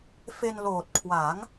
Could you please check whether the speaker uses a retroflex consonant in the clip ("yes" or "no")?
no